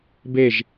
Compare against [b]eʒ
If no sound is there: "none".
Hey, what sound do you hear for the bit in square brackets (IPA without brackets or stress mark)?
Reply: b